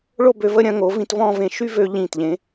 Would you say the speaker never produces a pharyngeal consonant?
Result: yes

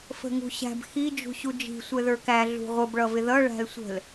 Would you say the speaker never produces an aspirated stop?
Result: yes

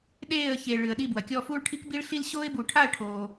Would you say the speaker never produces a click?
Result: yes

